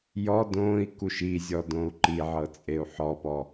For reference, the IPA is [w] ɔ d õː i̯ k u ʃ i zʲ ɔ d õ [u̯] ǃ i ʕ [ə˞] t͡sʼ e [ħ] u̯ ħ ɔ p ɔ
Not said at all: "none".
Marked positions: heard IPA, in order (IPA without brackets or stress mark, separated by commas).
j, u̯, ɤ, none